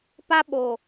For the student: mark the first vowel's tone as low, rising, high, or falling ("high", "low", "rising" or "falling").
high